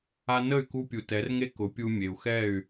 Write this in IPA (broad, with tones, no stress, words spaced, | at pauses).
a˧ nə˦˨y̯ku˧ pʲu˨tɛ˨˦rŋe˦ kʊ˨˦pʲu˧mʲe˨u̯ xɛ˦˨y̯